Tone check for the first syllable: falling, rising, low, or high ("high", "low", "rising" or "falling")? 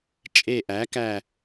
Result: low